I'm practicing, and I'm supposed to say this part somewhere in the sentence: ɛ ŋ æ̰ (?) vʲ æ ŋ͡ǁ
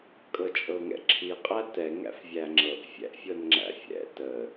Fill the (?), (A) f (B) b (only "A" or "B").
A